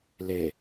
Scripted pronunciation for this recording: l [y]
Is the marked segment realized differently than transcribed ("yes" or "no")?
yes